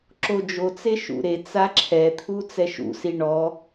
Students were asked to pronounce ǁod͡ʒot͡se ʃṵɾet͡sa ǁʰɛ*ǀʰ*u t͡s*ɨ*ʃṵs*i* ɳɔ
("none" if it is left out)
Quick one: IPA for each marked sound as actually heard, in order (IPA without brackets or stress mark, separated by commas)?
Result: t̪ʰ, ɛ, i